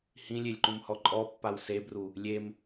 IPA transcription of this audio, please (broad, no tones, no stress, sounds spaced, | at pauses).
h ĩ lʲ e lʲ ǃ ũ m h ɔ ǃʼ ɔ pː a w s e b r u | lʲ e m